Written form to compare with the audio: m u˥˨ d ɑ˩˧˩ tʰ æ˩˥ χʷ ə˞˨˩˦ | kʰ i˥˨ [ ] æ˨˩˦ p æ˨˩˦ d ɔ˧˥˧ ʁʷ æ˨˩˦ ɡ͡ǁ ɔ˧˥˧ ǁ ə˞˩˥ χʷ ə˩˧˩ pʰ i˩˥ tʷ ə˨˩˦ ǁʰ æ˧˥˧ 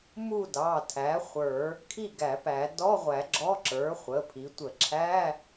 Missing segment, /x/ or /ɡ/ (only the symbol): ɡ